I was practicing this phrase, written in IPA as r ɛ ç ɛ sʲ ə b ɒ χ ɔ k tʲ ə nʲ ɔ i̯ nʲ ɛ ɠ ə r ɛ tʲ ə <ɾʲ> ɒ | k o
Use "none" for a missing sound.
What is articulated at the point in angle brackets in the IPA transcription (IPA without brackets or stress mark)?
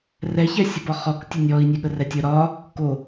ɾ